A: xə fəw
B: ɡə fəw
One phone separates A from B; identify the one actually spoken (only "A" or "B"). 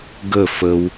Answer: B